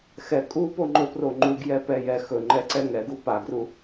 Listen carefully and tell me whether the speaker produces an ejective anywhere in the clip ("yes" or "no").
yes